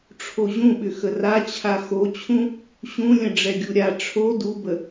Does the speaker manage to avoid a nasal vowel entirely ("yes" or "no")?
no